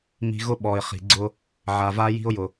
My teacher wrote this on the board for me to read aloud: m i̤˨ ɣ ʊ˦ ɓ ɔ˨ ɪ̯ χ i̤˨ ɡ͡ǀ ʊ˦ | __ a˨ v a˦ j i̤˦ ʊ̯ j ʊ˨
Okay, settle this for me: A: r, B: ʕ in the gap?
B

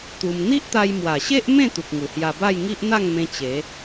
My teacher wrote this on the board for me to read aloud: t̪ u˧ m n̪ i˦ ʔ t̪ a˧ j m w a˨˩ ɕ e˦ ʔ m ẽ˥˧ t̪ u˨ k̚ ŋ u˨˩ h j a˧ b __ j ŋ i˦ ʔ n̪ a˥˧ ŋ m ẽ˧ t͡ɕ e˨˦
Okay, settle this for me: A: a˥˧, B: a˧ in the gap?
A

